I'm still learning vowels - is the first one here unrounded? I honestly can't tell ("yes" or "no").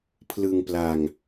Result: yes